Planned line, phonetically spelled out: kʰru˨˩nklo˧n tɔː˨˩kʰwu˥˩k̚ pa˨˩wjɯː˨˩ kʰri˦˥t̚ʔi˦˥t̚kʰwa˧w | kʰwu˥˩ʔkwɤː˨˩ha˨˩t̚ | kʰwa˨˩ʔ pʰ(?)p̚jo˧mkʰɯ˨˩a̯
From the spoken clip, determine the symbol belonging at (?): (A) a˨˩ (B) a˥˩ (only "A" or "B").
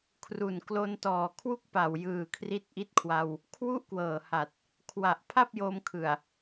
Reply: B